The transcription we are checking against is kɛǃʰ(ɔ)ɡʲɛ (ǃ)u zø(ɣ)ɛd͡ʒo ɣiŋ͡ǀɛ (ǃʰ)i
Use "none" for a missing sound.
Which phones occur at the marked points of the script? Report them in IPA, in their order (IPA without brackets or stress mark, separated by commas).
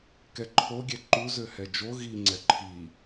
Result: o, ǃ, h, ǃʰ